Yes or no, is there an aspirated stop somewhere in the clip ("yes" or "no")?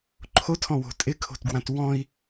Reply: yes